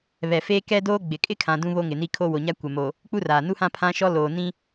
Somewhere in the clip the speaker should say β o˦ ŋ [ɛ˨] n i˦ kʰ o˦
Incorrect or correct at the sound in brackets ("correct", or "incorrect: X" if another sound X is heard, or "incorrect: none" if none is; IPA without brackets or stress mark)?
incorrect: ɪ˨